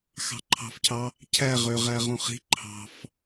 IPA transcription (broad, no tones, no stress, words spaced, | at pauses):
xɑ̤ǃʰɑ̤fcʰɑ | cʰæ ʁø ʁæʁõχi̤ ǃʰɑ̤f